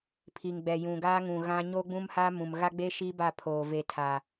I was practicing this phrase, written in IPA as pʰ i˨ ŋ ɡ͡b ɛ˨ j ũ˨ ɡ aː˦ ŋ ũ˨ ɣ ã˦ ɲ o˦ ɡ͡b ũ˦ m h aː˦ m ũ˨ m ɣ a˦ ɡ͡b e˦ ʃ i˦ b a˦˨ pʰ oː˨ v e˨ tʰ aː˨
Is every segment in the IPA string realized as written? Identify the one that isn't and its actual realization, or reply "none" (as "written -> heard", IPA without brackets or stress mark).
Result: none